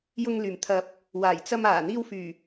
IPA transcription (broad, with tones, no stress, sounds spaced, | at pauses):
j ʊ˧ ŋ l yː˨˩ m t̪ʰ ɐ˨˥ p̚ | w aː˨˩ j t͡s ɐ˧ m aː˨˩ n̪ iː˧ w f yː˨˩